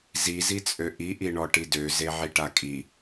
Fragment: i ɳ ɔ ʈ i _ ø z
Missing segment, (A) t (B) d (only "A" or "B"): B